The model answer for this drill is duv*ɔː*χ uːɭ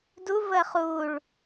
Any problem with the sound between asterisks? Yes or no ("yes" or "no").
yes